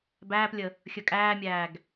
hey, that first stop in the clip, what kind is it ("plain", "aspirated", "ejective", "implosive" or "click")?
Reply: plain